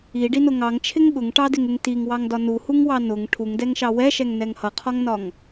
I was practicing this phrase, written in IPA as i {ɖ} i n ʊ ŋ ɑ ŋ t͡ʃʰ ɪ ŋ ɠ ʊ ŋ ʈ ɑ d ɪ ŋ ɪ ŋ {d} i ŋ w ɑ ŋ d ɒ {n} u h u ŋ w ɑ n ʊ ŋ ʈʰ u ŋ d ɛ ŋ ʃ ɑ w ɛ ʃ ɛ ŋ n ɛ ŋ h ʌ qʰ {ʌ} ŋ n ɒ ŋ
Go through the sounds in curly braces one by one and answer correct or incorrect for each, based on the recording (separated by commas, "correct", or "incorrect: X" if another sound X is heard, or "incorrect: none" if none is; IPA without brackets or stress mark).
correct, incorrect: t, correct, incorrect: ɒ